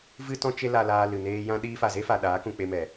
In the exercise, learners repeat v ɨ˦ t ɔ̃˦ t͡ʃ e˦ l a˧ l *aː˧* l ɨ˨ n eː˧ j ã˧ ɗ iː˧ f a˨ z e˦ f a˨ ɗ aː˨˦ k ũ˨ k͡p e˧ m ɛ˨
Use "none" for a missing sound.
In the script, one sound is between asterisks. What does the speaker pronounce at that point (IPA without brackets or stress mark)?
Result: aː˧